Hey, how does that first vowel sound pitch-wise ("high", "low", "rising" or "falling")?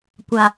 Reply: low